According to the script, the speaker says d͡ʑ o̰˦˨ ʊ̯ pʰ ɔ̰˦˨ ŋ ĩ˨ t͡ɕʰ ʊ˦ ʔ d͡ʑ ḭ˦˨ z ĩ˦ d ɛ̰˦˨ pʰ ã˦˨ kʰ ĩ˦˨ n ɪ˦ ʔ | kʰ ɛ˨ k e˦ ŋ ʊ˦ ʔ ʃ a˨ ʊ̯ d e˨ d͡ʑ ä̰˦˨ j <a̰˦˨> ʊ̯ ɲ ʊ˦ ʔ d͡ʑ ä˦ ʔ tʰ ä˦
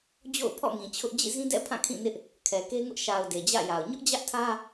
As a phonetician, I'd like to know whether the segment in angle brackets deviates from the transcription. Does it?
yes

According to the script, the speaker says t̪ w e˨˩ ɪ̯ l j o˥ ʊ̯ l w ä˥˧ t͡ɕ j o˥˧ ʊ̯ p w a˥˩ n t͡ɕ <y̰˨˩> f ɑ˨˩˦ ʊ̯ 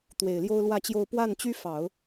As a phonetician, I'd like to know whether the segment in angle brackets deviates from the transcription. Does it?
yes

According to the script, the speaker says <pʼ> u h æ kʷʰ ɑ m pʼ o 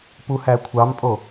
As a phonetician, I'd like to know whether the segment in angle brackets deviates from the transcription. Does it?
yes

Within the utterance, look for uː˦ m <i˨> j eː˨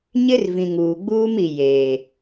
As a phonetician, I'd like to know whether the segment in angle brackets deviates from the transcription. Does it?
no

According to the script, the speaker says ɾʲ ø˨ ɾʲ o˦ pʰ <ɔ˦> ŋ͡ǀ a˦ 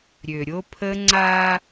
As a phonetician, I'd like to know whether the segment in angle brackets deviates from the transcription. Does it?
yes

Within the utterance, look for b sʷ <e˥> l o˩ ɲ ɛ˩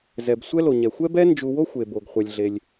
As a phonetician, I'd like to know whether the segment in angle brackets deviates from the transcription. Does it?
yes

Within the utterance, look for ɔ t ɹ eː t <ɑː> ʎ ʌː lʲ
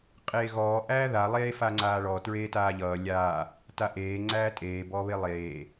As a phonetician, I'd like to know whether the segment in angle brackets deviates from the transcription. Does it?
yes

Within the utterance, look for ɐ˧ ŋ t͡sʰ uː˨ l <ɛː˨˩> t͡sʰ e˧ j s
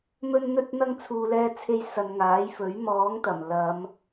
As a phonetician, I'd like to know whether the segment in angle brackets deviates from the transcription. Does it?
yes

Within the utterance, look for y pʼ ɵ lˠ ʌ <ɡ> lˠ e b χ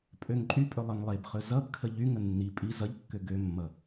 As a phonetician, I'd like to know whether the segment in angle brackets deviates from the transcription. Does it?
yes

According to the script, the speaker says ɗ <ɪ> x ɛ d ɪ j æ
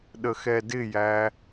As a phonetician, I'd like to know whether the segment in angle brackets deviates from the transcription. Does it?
yes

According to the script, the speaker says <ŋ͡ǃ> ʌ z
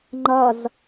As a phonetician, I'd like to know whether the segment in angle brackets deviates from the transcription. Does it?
no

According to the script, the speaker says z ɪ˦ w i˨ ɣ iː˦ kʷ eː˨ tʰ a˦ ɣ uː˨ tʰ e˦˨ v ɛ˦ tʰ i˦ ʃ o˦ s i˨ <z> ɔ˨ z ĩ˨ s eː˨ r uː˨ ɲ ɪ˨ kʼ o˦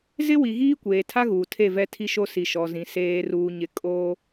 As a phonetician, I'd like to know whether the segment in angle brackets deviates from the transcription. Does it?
yes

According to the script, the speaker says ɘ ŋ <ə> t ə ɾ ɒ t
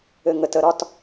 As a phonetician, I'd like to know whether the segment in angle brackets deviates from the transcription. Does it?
no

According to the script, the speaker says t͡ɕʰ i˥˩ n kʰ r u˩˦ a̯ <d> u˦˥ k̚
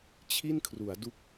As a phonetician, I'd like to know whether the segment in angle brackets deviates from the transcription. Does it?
no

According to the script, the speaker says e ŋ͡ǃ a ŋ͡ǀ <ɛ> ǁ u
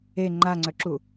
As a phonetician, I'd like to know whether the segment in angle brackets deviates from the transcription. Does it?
yes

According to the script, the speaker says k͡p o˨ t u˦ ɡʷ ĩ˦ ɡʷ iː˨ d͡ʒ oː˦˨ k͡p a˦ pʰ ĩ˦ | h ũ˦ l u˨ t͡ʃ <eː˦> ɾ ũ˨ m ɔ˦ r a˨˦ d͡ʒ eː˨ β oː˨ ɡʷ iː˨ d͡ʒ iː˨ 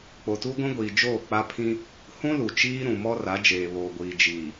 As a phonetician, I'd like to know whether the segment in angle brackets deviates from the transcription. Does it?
yes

